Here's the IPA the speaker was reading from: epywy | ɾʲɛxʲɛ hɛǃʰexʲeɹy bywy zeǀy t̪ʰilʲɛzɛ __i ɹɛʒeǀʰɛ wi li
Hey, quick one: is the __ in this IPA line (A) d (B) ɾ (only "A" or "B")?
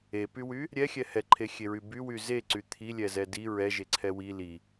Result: A